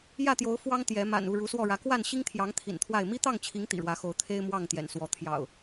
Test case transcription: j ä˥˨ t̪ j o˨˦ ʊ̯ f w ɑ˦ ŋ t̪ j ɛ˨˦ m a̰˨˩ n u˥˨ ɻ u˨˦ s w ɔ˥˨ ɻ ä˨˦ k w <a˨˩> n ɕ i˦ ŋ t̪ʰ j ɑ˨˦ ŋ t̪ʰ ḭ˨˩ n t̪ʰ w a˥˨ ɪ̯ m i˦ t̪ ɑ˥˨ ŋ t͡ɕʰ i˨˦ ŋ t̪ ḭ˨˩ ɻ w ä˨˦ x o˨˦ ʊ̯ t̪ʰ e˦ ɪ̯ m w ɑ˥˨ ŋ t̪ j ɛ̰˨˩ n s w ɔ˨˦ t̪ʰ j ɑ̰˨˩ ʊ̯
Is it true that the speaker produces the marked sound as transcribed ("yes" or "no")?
no